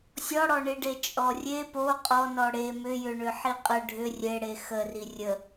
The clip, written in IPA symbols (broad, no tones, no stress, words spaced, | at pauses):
sʲɔɽɔɳiɖe t͡ʃʼɔrʲe po qʼɔnɔ ɽe mʏjʏɳʏ ħiqʼə ɖʱʏ rʲeɽe xə rirʲə